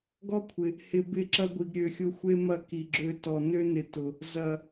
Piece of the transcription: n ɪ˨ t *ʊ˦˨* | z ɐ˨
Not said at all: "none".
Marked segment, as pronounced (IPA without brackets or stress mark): ʊ˨